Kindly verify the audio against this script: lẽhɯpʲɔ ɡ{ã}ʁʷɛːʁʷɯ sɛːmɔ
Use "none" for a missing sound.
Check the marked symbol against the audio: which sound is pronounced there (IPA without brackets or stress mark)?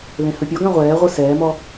ã